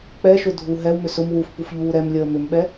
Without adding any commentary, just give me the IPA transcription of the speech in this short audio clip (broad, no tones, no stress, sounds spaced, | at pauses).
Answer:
k͡p ɛ ʃ ʊ dʱ u ɦ ɛ w m ʏ s ʊ m w u f p u f ʎ uː ɾ ɛ m lʲ əː m ʏ m ɓ ɛ